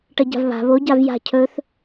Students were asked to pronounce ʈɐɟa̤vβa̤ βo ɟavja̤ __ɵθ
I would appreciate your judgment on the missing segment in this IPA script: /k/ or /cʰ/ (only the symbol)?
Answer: cʰ